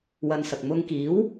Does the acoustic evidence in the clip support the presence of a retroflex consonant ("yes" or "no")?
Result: no